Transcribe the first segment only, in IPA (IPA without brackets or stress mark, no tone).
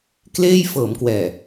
k